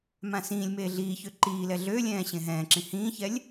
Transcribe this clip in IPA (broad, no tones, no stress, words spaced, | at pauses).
mãsĩːlʲmeː ɮiːçø ǃiːlɛ ɮølʲɛ̃ː ɕẽɦɛ̃ːǁĩ hĩːçɛlʲ